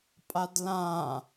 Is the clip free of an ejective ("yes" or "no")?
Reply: no